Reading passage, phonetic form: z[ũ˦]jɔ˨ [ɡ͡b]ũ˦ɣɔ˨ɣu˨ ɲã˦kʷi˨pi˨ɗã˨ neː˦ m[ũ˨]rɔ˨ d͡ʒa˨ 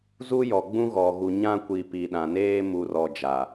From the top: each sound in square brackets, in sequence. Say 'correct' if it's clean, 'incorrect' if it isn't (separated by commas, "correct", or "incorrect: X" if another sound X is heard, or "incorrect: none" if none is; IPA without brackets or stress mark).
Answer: incorrect: u˦, correct, incorrect: u˨